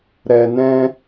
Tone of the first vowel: low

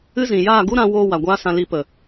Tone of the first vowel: high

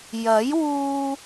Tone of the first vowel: rising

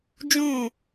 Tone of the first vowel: falling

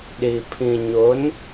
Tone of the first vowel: low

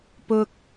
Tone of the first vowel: low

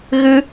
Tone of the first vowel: high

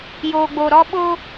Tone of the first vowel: low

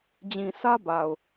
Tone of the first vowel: low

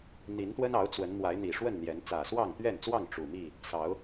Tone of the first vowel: rising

